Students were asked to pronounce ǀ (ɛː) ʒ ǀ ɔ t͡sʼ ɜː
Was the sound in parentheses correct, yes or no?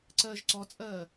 no